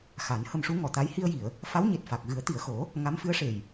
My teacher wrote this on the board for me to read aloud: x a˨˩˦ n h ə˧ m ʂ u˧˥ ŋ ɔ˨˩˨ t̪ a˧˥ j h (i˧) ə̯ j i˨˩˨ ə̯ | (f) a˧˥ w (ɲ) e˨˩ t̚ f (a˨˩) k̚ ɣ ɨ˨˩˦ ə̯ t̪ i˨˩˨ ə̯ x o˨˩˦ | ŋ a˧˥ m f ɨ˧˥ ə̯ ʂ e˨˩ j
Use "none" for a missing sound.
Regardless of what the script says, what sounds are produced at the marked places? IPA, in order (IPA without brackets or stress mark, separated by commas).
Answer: i˧, f, ɲ, a˨˩